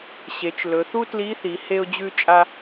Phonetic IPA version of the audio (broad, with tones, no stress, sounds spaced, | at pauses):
ɕ e˩˧ t͡ʃ l ɵ˩˧ θ u˥ t l i˧˥ θ i˩˧ h e˧ ʊ̯ d͡ʑ ʉ˧ t͡ʃʼ a˧